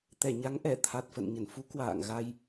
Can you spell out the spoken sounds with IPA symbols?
t̪ɛ˧˩ɲa˨˦ŋʔɛ˧˩ t̪ʰa˨˩t̚fə̰˧˨n ɲə˧˩nfu˨˦ kwa̰ː˧˨ŋɣa˧j

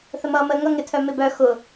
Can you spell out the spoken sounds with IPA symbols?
θəmʌːməːŋʌ ŋɪtʰœmɪ bœ xʊ

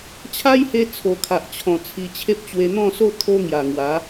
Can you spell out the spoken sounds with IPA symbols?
t͡ɕʰa˦jhe˧ t͡sʰo˨˩kʰa˨ʔt͡ɕʰɔ̃˨˩ t͡sʰi˧ t͡ɕʰe˦p̚t͡ɕwe˧ n̪ɔ̃˥˧so˥˧ t̪ʰo˦ŋja˨˩ŋwa˨˦

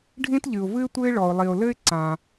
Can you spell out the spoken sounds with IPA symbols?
ɖʱĩ˥tʎɨ˩ʊ̯vɨ˥ɪ̯ tʷɘ˥ɪ̯ ɭɔ˩ʊ̯lˠi˩ʊ̯lɘ˥ɪ̯ ǀã˩

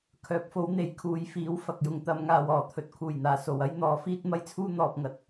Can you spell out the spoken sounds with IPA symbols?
kʰœː˨˥p̚fo˨˥wn̪e˨˥j kʰuː˨jfiː˨˥w fɐ˨k̚jʊ˨ŋt̪ɐ˧m ŋaː˨wɔː˨˩ t̪ʰɵ˨t̚kʰuː˨˩jn̪aː˨˩ so˨˩wɐ˥j n̪ɔː˨˥fiː˥t̚ mɐ˥jt͡sʰuː˥ n̪ɔː˨p̚ŋɐ˨t̚

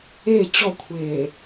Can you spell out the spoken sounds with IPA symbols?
e t͡ɕɔkʷʰeː

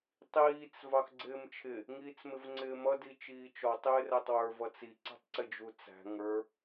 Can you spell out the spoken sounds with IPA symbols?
tˤiːt͡s vɑxɡ͡ǀɪːmt͡ʃʰɪ | ŋiːt͡smɪvŋ͡ǀɪːmʌ dit͡ʃiːt͡ʃɔ tˤɪːrætˤwə˞v ʌt͡si ǀɛ̤tˤǀɪd͡ʒut͡sæ̤ ŋə˞

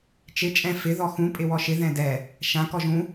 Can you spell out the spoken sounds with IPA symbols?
t͡ʃɪ t͡ʃʼɛ̃ fɪ ðɔxũ pʼɪwɔʃɪ ðɛ̃dɛ | ʃã kɔʒũ

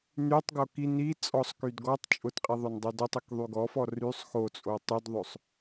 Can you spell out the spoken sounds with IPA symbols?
nytˤɡo ki ni t͡sʼɔsˤkyd ɡɔtˤ t͡ʃʼʊtqʼiðˤʊndˤy dʊtˤikðˤy ɡɔfɔ rysˤ xot͡sʼo tˤydðˤɵsˤ

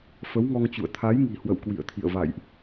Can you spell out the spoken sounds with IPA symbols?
fə˨˦wŋɔ˧ŋt͡ɕṵ˧˨ə̯ t̪ʰa˨˦jŋi̤˨˩ hwə̰˧˨wkwḭ˧˨ə̯t̪ʰḭ˧˨ə̯ va̰˧˨jʔ

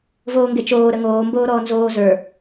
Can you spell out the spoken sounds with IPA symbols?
voːŋɡet͡ʃoː ɾəŋoː mboːɾɔːnzoː zə˞

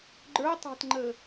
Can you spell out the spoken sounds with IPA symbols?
ɡ͡ǃə˞ tˤæ̤tŋ͡ǃəː

